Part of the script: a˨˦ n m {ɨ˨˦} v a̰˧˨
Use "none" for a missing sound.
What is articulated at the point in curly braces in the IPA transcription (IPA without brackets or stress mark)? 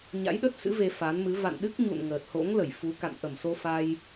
ɨ˨˦